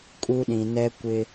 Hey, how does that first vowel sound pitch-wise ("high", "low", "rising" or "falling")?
high